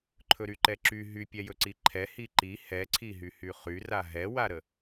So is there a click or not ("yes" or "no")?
yes